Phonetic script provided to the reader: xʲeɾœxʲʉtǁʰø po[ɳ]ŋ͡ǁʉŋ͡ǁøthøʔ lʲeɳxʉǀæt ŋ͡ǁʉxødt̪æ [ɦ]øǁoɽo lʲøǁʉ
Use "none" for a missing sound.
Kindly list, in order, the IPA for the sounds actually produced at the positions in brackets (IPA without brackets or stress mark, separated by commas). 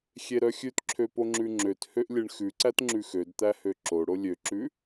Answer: none, h